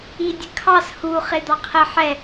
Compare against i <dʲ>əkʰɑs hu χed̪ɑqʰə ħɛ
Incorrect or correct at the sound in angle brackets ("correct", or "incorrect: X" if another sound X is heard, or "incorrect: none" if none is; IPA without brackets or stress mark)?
correct